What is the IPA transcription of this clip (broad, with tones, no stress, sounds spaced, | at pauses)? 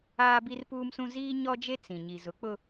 aː˦ b i˦ r p uː˦ m s ũ˦ z iː˦ ɲ ɔ˦ d͡ʒ e˦ t͡s ĩ˨ ɲ i˨ z ʊ˨˦ k͡p ʊ˦